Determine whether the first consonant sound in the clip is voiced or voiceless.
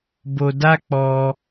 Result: voiced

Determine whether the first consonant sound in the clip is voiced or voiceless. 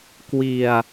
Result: voiceless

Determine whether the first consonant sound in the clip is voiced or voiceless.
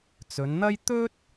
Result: voiceless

